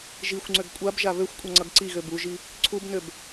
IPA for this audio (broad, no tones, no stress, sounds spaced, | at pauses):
ʒ i xʷ ŋ͡ǀ ø ɡ kʷʼ a b ʒ a β ø xʷ kʷʼ ʌ ŋ͡ǀ ʌ ɡ ǀ i ɣ ø b u ʒ i | ǀʰ u b n ø b